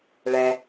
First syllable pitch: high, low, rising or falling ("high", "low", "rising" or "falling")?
low